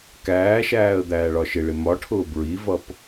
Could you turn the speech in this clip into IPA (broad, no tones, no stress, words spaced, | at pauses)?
kæːʃæːə̯ d̪æːɭɒʃɪɭɪ mɒʈʰʊː bɹivʌp